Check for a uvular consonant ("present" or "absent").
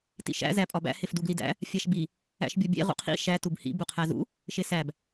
present